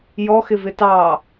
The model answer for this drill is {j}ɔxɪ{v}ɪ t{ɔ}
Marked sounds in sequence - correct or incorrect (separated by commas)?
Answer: correct, correct, incorrect